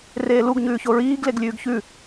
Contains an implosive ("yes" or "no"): no